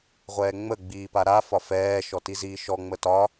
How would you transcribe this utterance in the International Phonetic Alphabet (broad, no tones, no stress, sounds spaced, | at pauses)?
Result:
ʁʷ ɛː ŋ͡m ə ɡ͡b iː p a ɾ a f ɒ f ɛː ʃ ɔ t i z iː ʃ ɔ ŋ͡m ə t ɒ